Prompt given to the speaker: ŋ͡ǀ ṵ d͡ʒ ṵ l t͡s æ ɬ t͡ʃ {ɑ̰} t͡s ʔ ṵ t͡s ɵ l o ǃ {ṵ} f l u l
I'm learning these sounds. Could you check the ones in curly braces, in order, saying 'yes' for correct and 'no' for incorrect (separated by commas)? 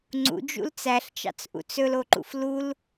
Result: yes, yes